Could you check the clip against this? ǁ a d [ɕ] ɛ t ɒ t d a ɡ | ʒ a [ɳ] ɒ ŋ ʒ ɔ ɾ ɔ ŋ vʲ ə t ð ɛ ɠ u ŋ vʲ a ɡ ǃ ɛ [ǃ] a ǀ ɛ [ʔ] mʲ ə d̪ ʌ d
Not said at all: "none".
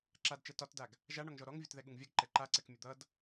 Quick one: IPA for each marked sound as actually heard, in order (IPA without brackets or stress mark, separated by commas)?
t͡ʃ, ɳ, ǃ, k